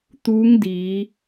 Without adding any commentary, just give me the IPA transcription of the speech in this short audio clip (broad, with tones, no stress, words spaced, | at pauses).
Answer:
t̪uː˧˥ŋdiː˩˧